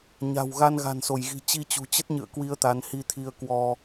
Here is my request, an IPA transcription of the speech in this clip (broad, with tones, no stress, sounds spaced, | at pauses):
ɲ a̤˨˩ w ɣ a˧ n ɣ a̤˨˩ n s o˧˩ j ɣ i̤˨˩ t͡ɕ i˧ t͡ɕ ṳ˨˩ t͡ɕ ə˦˥ t̚ ɲ ɨ̰˧˨ ə̯ k w i˧ ə̯ t̪ a˨˦ n h i˧ t̪ʰ i˧ ə̯ k w ɔ˧